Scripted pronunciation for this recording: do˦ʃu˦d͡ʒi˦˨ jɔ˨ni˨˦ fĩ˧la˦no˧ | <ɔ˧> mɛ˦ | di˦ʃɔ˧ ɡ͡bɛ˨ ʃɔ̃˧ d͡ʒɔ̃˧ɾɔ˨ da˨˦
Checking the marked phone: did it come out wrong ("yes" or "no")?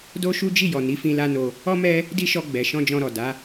yes